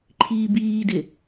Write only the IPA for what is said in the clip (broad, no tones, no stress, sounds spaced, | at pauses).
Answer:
ǃʰ iː b iː d ɪ